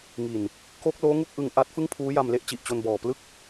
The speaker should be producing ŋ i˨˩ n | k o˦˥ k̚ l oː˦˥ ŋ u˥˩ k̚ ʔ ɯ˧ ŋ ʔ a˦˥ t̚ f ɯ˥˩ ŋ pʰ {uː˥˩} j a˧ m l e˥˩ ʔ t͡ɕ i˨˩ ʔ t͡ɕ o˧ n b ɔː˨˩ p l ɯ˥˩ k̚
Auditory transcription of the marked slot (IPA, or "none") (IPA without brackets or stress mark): uː˦˥